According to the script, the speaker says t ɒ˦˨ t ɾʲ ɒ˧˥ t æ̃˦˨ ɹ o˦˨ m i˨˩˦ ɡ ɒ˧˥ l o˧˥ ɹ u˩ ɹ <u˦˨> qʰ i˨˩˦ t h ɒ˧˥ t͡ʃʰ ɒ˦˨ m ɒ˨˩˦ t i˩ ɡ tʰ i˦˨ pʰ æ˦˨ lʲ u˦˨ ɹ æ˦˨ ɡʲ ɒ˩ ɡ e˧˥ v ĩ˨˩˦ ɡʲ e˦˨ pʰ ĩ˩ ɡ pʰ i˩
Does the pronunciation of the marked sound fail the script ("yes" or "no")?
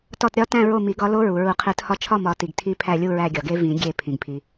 yes